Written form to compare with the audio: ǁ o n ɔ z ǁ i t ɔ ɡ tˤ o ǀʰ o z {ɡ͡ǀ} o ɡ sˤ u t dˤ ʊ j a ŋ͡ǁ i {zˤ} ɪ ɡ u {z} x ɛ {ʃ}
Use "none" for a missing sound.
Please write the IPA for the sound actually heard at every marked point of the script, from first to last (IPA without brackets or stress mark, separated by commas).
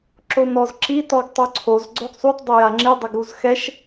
ɡ͡ǀ, dˤ, z, ʃ